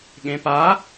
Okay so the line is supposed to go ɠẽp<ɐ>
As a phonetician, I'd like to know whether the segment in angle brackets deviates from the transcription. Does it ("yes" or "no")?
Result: yes